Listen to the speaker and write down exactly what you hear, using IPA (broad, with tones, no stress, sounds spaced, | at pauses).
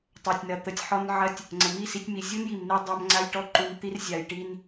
tˤ a˨ tʲ n ɐ˨ t̪ ə˨ tʲ ħ ɔ˧ n ʕ ɐ˧ tʲ | ŋ͡ǀ ə˨ m i˦˨ s i˧ tʲ m i˨ zʲ u˦ n j i˨ m n i˧ dˤ a˧ m ŋ͡ǀ a˧ j ʈ ɔ˧ ǃ u˨ n t̪ i˦ r zʲ a˨ j ʈ i˧ n